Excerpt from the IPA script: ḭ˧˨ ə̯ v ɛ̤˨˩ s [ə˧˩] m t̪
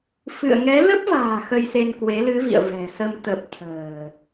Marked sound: incorrect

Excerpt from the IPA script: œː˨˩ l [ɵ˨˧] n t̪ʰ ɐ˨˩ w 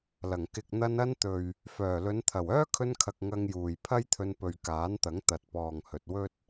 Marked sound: correct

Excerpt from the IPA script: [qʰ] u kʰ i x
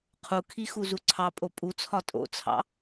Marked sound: correct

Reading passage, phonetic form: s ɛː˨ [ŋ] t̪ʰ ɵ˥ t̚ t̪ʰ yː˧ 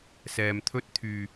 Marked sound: incorrect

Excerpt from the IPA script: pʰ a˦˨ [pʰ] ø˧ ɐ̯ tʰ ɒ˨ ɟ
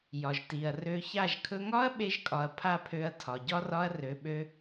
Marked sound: correct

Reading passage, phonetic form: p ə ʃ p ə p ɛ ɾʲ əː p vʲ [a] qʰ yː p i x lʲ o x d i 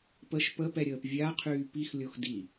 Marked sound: correct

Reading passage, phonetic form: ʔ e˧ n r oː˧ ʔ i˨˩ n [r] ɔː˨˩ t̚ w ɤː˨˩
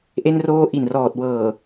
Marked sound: correct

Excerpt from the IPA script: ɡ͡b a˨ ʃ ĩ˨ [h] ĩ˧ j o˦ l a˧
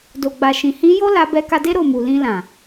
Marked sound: correct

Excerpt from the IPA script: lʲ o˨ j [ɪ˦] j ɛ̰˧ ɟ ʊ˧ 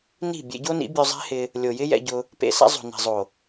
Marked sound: correct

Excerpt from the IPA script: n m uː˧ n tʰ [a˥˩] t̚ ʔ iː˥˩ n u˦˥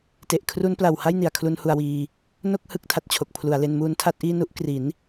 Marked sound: correct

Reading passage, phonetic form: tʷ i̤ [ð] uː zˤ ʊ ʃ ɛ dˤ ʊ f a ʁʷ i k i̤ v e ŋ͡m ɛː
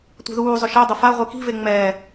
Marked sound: correct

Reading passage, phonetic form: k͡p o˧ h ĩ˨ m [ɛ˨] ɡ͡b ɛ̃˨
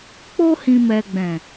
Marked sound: correct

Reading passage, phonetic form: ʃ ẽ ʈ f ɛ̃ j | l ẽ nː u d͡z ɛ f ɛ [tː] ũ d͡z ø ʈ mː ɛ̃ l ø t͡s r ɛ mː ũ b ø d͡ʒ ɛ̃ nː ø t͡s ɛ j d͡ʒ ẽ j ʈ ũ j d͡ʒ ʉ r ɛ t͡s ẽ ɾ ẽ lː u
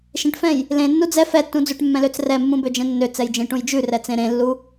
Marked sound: correct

